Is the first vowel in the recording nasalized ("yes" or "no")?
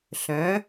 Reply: yes